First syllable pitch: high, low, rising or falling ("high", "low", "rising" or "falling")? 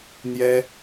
high